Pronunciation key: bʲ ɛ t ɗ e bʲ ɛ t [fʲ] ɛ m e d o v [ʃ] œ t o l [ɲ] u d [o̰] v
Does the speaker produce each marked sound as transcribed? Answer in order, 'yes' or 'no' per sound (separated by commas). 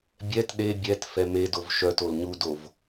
no, yes, yes, no